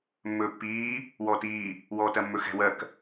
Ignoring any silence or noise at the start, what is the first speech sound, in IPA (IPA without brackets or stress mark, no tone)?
mː